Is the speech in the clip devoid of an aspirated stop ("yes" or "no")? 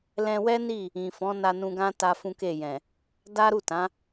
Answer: yes